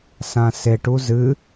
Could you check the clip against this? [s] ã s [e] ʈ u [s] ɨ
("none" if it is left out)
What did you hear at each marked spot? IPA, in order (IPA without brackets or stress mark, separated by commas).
s, e, z